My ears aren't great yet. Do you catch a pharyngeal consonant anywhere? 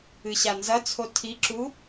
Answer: no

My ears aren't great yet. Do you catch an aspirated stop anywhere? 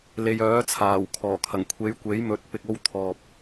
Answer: yes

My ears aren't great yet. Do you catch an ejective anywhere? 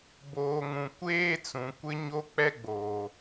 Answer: no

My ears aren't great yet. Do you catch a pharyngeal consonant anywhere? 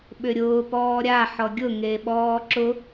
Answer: yes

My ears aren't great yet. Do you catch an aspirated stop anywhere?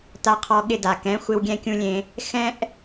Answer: yes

